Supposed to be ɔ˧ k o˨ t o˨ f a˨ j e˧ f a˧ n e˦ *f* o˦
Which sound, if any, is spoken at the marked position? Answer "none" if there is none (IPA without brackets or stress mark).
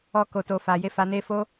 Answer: f